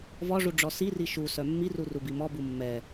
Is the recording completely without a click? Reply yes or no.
yes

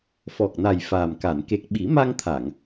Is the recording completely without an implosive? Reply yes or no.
no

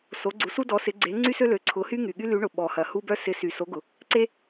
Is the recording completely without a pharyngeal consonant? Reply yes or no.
yes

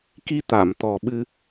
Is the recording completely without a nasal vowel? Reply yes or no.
yes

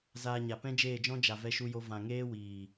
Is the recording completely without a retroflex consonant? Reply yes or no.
yes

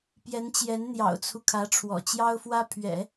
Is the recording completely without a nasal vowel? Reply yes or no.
yes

